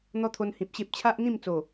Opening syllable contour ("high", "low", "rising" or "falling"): high